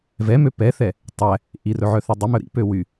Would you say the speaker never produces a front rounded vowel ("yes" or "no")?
no